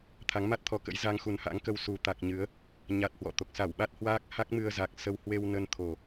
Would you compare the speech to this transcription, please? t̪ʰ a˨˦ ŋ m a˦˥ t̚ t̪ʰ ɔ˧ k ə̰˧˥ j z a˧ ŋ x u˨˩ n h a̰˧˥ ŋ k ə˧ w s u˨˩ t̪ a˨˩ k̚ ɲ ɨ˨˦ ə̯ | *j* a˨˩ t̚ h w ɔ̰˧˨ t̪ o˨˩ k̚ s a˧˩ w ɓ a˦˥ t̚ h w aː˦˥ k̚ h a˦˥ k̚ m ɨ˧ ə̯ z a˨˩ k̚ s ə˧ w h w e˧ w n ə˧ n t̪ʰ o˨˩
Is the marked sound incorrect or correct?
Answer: incorrect: ɲ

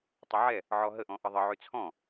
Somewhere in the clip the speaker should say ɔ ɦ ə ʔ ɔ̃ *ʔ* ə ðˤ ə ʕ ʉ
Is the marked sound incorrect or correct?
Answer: correct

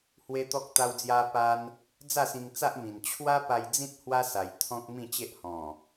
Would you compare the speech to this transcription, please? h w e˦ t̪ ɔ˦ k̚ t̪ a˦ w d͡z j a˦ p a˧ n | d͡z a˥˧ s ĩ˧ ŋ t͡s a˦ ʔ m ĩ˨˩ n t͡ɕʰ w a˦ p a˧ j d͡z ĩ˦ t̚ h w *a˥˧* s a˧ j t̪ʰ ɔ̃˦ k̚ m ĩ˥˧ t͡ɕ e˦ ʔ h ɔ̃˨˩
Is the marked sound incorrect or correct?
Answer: incorrect: a˦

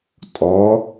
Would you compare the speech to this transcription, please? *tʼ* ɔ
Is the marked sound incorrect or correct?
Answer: correct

